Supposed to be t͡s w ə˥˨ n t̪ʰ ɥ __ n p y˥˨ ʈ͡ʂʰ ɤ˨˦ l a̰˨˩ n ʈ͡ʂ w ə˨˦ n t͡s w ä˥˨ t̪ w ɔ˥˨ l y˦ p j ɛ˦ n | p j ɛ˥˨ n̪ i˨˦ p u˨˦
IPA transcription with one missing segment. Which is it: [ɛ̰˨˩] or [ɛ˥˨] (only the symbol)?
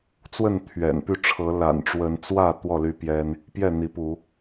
ɛ̰˨˩